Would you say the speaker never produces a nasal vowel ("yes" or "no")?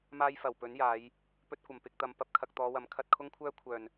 yes